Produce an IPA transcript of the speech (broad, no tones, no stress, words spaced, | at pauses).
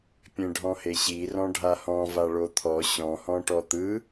pʲẽɖʱɔ̃heɕi rɔ̃ɖʱahɔ̃ vaɭot̪ʰɔ ɕɔ̃ hɔ̃ʈɔt̪ɯ